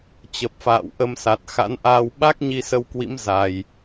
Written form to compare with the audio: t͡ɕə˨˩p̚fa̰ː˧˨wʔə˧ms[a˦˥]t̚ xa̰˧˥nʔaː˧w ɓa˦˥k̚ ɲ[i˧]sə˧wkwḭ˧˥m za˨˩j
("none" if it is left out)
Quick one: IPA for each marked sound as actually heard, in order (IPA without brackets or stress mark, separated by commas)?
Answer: a˨˩, i˧